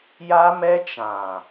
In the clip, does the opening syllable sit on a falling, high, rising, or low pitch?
high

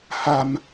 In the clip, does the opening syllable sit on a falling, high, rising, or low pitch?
low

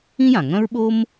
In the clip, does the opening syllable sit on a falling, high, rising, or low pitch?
high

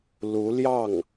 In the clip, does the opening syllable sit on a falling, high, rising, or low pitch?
rising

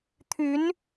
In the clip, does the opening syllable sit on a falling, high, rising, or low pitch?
rising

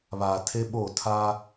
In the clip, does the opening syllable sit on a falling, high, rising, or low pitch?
low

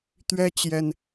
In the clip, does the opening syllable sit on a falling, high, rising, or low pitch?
high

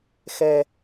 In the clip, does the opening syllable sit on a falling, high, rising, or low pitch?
low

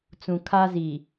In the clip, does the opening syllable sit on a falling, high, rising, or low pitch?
low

